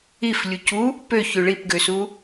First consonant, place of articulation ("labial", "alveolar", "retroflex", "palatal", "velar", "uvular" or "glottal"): labial